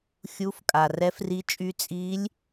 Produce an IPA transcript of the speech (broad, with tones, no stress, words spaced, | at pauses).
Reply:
xʲu˧˥fkʼa˩ rɛ˧˥fri˧˥t͡ʃʼy˧˥ t͡sʼi˧˥lʲ